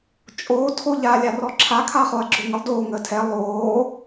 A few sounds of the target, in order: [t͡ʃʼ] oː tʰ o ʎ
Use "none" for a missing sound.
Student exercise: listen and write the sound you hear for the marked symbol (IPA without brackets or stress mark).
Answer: t͡ʃʼ